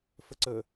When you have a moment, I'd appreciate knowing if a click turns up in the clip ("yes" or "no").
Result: yes